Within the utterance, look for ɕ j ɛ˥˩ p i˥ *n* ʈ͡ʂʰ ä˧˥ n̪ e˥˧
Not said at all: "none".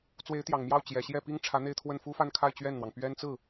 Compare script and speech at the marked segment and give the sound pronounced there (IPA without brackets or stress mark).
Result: ŋ